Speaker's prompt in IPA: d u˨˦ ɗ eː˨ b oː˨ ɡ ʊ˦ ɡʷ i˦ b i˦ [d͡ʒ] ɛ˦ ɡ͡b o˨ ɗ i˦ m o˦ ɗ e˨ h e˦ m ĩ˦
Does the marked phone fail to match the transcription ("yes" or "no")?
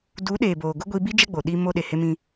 no